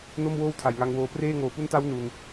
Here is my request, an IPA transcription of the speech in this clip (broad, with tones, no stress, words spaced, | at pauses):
no˥˩mwoː˥˩w tʰa˨˩j ŋa˧ŋwoː˧preː˥˩ ŋoː˨˩pu˦˥nta˦˥w nu˧n